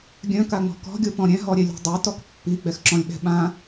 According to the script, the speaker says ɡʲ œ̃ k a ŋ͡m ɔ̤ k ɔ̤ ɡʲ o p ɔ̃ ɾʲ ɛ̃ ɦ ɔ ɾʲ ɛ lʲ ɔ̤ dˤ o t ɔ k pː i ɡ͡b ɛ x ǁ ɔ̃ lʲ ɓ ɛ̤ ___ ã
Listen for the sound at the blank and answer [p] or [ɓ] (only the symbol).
ɓ